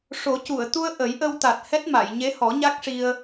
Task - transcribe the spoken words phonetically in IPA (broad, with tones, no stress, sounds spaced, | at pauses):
ʂ o˨˩˦ c u˨˩˨ ə̯ t̪ u˧ ə̯ ʔ ə˨˩˦ j ʔ ə˧ w t̪ a˨˩ t̚ h ɛ˦˥ t̚ m a˨˩˨ j ɲ e˧˥ h ɔ˨˩˦ ɲ a˦˥ k̚ ʂ i˧ ə̯